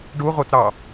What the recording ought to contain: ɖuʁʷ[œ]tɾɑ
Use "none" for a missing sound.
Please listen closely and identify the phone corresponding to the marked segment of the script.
œ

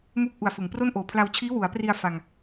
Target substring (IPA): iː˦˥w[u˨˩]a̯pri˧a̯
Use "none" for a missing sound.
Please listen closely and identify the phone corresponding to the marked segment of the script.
u˩˦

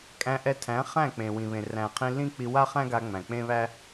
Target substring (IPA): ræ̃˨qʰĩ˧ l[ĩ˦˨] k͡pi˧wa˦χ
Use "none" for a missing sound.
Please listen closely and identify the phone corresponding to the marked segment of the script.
ĩ˦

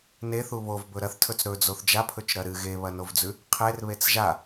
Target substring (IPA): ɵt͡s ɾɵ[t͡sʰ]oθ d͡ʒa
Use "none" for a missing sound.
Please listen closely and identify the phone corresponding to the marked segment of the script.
d͡z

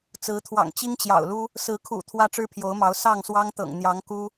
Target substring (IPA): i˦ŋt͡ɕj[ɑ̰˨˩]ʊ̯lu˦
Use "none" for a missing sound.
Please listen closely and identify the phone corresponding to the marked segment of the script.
ɑ̰˨˩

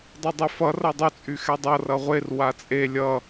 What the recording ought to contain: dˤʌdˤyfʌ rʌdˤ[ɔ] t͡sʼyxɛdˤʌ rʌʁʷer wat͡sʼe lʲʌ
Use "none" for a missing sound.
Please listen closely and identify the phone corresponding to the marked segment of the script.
ɵ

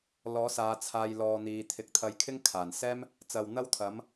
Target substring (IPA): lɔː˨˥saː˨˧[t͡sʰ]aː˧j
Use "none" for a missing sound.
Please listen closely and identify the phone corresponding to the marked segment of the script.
t͡sʰ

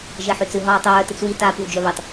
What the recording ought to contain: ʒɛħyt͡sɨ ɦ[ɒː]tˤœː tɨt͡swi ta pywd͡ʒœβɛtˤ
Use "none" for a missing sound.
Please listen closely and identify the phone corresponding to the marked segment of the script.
ɒː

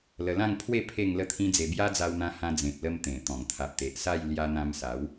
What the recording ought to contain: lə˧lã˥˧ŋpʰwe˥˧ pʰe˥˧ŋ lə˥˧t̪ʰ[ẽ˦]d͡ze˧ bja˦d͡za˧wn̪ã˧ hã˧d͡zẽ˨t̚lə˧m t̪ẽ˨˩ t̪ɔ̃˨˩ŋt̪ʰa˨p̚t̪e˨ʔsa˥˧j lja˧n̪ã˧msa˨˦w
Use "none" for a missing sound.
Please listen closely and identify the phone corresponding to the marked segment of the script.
ĩ˦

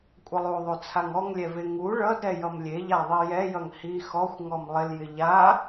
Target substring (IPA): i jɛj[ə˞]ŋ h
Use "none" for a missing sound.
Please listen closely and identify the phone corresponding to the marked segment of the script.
ʌ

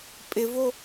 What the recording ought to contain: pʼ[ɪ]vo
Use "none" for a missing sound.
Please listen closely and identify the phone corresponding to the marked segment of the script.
ɪ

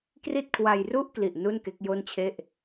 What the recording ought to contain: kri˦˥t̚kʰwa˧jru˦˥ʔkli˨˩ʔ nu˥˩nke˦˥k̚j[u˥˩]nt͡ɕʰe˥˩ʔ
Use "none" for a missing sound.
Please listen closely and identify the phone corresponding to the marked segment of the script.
o˥˩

